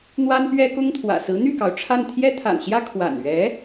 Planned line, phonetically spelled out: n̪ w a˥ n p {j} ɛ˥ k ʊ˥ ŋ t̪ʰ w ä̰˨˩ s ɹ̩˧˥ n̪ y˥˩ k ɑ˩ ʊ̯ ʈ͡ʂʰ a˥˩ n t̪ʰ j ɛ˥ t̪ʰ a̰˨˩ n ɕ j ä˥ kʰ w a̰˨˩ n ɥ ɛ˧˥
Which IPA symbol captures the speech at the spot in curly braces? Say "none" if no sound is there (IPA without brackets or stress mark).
ɥ